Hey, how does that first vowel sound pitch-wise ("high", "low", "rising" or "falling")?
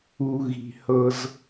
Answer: low